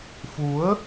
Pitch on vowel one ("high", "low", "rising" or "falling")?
rising